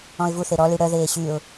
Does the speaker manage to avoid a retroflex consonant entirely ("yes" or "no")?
no